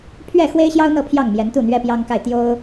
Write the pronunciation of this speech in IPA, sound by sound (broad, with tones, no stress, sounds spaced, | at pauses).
pʰ ɥ ɛ˥˩ x w e˥ ɪ̯ ɕ j ɑ˥ ʊ̯ n̪ ɤ˥˧ pʰ j ɑ˥˩ ŋ m j ɛ˧˥ n t̪ u˥˩ n̪ ɥ ɛ˥ p j ɑ˥ ŋ k a˥˩ ɪ̯ t̪ j o˥ ʊ̯